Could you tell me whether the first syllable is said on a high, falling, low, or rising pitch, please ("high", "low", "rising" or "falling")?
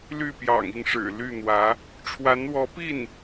falling